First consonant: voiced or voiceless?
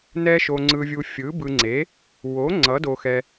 voiced